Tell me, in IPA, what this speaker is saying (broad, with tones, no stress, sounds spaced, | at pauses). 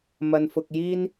m ɐ˨ n f ʊ˨ k̚ j iː˧ n